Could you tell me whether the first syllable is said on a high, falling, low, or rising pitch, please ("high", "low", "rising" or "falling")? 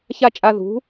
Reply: high